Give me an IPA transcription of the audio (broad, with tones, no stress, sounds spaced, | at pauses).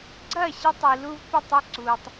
ɡ͡ǀ ɐː˦˨ ɕ ɐ˧ tˤ i˨ l u˧ v p ɐ˦˨ tˤ ɛ˧ ǀ uː˨ tˤ